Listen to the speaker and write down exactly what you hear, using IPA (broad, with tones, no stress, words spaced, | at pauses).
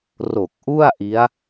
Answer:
ro˨˩k̚ʔu˥˩a̯ʔi˦˥a̯